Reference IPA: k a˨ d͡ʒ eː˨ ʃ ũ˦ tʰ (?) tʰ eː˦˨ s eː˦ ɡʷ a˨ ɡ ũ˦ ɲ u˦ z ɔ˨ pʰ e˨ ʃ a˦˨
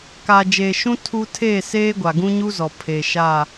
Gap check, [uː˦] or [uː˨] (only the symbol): uː˦